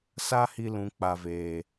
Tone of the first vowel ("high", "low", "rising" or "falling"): high